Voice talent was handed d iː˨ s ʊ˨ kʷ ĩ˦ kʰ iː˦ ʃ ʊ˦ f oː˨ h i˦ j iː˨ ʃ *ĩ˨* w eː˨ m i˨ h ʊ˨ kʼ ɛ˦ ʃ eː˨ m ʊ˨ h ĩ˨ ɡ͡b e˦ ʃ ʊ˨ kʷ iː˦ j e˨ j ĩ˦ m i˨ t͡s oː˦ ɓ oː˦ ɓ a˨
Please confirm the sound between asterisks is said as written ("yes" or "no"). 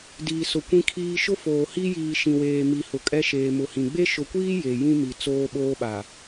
yes